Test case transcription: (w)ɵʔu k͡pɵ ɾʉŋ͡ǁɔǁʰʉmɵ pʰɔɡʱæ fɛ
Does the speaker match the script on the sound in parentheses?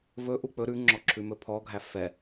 no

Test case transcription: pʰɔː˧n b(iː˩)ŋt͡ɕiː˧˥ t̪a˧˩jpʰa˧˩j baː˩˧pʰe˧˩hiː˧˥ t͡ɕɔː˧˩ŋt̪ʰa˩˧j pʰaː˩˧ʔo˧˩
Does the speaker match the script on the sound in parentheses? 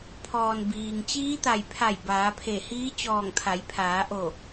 yes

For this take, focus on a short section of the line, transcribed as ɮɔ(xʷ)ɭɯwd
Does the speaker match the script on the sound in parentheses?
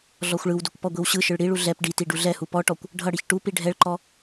yes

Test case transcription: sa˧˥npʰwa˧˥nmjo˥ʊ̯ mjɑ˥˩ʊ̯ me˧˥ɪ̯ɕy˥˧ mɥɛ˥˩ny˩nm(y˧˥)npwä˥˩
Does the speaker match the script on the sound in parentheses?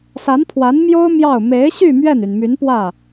yes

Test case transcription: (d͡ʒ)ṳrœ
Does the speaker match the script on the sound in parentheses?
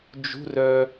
yes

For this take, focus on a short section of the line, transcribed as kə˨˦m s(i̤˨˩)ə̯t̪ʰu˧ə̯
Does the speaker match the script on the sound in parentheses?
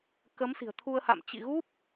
yes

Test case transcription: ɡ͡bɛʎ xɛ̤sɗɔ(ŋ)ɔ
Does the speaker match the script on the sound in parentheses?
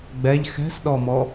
no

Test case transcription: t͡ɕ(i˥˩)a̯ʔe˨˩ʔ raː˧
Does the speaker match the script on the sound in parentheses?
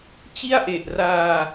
yes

